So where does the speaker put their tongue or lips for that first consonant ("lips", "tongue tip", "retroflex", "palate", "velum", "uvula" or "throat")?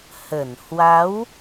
throat